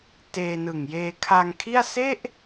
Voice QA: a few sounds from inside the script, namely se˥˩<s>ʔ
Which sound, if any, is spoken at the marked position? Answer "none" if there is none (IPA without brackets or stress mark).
none